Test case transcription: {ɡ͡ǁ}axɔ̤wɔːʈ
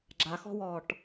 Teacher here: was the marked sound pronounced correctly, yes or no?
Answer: yes